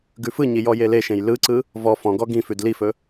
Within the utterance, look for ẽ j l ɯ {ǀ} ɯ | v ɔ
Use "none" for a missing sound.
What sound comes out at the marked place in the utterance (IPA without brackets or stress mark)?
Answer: ǀ